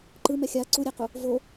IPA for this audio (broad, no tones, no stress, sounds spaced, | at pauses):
ǃ ɯ m ɛ xʲ a ǀ u ɾʲ e q u | v o